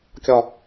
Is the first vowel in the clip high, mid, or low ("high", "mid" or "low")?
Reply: low